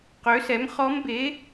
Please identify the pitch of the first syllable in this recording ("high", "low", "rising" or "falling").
rising